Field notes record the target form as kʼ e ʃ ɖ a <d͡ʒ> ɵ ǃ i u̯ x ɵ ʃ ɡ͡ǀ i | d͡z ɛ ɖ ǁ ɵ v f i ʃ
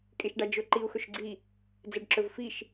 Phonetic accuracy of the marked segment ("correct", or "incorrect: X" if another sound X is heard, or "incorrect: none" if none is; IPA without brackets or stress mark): correct